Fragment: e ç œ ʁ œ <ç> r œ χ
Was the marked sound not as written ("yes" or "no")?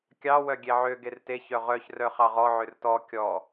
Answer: no